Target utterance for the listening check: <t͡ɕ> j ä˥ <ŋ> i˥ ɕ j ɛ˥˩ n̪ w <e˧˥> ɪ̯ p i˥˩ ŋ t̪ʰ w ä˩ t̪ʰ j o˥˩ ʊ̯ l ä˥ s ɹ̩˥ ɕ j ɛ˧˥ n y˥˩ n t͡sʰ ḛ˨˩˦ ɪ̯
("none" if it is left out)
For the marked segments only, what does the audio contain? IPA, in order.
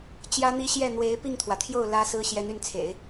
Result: t͡ɕ, n̪, e˧˥

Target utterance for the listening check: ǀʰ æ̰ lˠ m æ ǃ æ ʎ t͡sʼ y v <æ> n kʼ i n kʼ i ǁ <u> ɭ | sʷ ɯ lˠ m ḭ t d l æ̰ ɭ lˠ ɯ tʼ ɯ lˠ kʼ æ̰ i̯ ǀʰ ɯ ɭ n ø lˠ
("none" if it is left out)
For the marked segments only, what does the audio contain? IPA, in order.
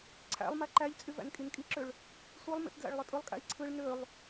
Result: æ̰, ø

